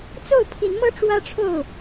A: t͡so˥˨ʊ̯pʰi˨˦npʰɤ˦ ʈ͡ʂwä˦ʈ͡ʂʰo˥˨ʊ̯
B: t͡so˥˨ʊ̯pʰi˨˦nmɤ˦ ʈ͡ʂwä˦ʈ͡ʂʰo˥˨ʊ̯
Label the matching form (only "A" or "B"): B